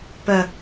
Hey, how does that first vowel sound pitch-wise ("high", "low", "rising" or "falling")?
low